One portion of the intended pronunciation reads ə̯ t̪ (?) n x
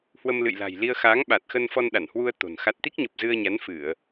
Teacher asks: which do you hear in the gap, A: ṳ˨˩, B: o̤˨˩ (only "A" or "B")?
B